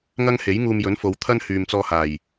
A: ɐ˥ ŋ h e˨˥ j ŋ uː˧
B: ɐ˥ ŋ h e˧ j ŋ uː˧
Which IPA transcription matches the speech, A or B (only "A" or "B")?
A